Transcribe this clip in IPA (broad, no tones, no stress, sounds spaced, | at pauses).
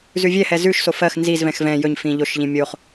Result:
z ʉ vʲ ɛ h ɛ z ʉ ʃ s o f ɜ x n z i z v ɛ̃ x v ɛ̃ j ɵ ɲ f ĩ ʎ o ʃ ʎ ĩ mʲ o χ